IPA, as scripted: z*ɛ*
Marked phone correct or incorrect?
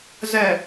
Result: correct